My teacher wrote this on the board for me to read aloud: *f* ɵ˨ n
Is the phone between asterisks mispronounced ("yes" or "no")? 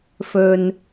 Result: no